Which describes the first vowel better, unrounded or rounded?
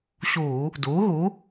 rounded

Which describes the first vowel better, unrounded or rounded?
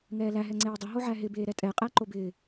unrounded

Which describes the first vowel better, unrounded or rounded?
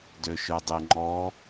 rounded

